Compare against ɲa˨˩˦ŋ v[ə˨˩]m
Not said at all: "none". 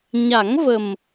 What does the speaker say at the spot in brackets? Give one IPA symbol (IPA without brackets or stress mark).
ə˨˩